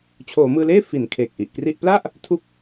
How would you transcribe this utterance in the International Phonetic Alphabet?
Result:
t͡ɕʰ oː˩˦ m ɯː˧ l eː˥˩ f i˩˦ n kʰ eː˨˩ k̚ ʔ i˨˩ ʔ k r i˥˩ ʔ p l a˥˩ ʔ | tʰ u˦˥ k̚

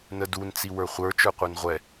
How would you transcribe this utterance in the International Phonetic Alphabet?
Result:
n ə d u n t͡s i w ə˞ χʷ ə˞ t͡ʃ ə˞ qʷ ə˞ n ʁʷ ɛ

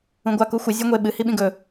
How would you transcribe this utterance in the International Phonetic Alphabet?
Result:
ũ ɡʷ a k u xʷ ɨ zʲ o ŋʷ e ɓ ɨ h i ɓ ĩ ɡ ɵ

